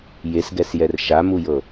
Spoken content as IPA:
j e s ɡ ɛ s j ɛ r ʃ a m u j ɤ

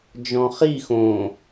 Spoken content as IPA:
d͡ʒ ɔ̃ χ i x õ

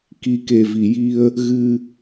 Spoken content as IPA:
k i˨˩ k e˨˩ v i˨˩˨ j i˧ ə̯ | ɣ ɨ˧

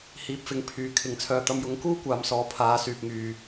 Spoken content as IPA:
h iː˨ p̚ f ɪ˨˥ ŋ pʰ yː˨ kʰ ɪ˨ ŋ t͡sʰ œː˨ t̪ ɐ˧ m j ʊ˨˥ ŋ k uː˥ kʷ aː˨˧ m s ɔː˨˧ pʰ aː˨˧ s yː˨ p̚ ŋ yː˨

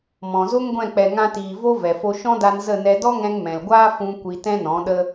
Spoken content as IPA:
m ɔ̃˨ z o˦ ŋ ɡʷ ɛ̃˦˨ k͡p ɛ˧ ŋ ã˦ t iː˧ v o˦ v ɛ˨ f o˧ ʃ ɔ̃˦ d a˧ n z ə˦˨ n ɛ˧ d ɔ˦ ŋ ɛ̃˧ ŋ m ɛ̃˨ l ɡʷ aː˦ f ũ˧ kʷ i˧ t ɛ̃˦ n ɔ̃˨˦ ɗ ə˦

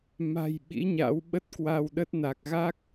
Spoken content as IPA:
m a̤˨˩ j ɓ ḭ˧˥ ɲ a̰˧˥ w ɓ ə˦˥ t̚ k w a˧ w ɗ ə˦˥ t̚ n a˨˩ k̚ ɣ a˦˥ k̚

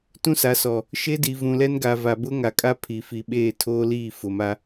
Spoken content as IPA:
t ũ˦ s a˨˦ s ɔ˨ | ʃ e˦ d i˨ v ũ˨ l ɛ˦ n ɡ a˨ v a˨ b ʊ˦ ŋ a˨ kʼ a˦ pʰ i˨ f i˨ ɓ eː˦˨ tʰ oː˦ l iː˦˨ f ʊ˨ m a˦

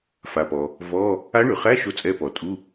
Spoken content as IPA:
f a˩ p ɔ˩ | v ɔ˧˥˧ | a˧˥ ɳ y˩ χ æ˧˥˧ ʃ o˧˥ t͡sʼ ɛ˧˥ p ɔ˩ tʼ u˧˥˧

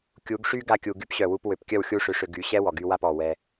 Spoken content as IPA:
kʲ u˨˦ ɡ ʂ y˦ ɡ a˦˨ kʲ u˨ ɡ y˦ p ɕ œ˨ w u˧ p w ø˨ p kʲ œ˦˨ w xʲ u˦ ʂ ø˧ ʂ ø˧ ɡ y˨˦ ɕ ɛ˦ w ɔ˨ ɡ y˧ w a˦˨ p ɔ˨ w ɛ˧

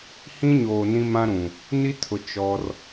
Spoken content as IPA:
h ĩ˦ ɲ oː˨ n ĩ˦ m ã˦ ɾ ũ˨ | n i˦ tʰ ʊ˨ t͡ʃ ɔ˦ r

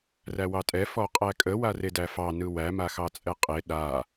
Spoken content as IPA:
r æ w ɑ tʼ ɛ f ɔ qʼ æ kʼ ə w a r e d æ f ɑ n ɯ w æ m a x ɑ t͡sʼ ɛ qʼ e ɗ a

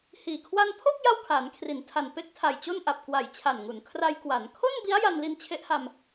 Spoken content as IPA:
h iː˨˩ kʰ w a˧ n pʰ o˥˩ k̚ j a˥˩ w kʰ aː˩˦ n kʰ r i˩˦ n tʰ a˨˩ n p e˥˩ k̚ tʰ a˨˩ j t͡ɕ o˥˩ n ʔ a˨˩ p̚ k w a˨˩ j t͡ɕʰ a˨˩ n ŋ u˩˦ n kʰ r a˧ j k w a˩˦ n kʰ o˥˩ n b i˦˥ a̯ j a˧ n l i˧ n t͡ɕʰ e˦˥ ʔ h a˧ m

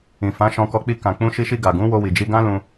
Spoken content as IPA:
ĩ˨ f ã˨˦ ʃ ɔ̃˧ k ɔ˧ k͡p i˧ k ã˨ k͡p ũ˧ ʃ i˧ ʃ i˧ ɡ a˨ ɡ ũ˨˦ w o˧ w i˨ d͡ʒ i˧ ɡ ã˦ l ũ˧

